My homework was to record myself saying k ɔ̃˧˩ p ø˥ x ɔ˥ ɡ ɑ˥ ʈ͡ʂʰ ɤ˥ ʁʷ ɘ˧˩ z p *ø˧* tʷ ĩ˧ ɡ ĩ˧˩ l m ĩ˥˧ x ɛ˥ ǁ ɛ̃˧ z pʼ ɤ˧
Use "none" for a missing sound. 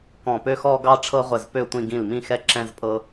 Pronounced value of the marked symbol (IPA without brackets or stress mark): ø˥˧